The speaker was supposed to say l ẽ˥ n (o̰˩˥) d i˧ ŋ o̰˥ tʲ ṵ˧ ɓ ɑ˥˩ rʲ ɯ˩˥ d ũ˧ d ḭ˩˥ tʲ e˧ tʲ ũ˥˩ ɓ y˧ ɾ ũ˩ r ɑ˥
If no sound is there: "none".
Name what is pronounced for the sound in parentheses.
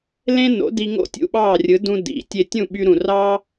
o̰˩˥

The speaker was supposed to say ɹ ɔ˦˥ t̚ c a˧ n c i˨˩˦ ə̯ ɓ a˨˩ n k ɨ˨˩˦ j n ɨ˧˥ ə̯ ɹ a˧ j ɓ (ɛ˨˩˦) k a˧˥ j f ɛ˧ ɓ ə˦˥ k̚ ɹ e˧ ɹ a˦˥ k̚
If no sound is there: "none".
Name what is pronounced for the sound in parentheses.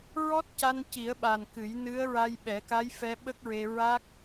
ɛ˨˩˦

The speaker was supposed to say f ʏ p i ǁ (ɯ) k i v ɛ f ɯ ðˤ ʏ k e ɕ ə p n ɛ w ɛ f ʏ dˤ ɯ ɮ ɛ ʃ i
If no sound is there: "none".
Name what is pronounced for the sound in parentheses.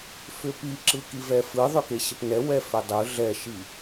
ɯ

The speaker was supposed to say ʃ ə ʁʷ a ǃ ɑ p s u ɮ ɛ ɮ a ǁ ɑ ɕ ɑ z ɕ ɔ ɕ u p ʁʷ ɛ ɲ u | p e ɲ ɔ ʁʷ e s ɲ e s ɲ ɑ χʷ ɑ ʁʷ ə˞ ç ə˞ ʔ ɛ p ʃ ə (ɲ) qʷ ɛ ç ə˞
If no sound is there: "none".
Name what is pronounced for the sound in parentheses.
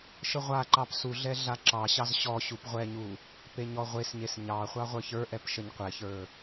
ɲ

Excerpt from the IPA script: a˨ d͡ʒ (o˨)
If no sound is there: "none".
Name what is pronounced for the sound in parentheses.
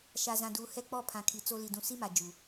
u˨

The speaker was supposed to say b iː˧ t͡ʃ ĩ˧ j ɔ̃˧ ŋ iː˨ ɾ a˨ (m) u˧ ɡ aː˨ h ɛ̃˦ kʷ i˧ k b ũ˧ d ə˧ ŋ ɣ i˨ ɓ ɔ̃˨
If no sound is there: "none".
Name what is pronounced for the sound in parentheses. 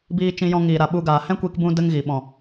ɓ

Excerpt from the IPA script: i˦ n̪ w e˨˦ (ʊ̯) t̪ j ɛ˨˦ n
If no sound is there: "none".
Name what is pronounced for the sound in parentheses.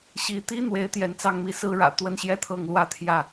ɪ̯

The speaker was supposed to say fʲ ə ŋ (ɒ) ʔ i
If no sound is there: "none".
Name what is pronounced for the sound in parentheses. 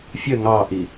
ɑ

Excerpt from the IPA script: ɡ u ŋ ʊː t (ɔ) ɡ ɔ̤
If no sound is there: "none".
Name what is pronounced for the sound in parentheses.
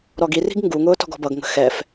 ɔ̤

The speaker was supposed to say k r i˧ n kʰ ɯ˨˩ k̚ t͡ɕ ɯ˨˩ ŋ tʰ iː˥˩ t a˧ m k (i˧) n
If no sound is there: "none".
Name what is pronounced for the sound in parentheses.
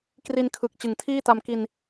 i˧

